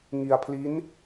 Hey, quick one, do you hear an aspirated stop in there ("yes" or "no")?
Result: yes